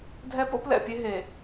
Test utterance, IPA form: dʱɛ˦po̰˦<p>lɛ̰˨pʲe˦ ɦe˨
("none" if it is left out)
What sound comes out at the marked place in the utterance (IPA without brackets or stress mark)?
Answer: p